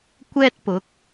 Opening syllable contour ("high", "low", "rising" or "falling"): high